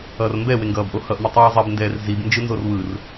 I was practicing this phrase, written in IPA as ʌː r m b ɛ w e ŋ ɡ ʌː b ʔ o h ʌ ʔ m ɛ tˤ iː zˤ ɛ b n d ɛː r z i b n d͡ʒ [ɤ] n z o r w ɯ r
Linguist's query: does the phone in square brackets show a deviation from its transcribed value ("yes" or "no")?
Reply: yes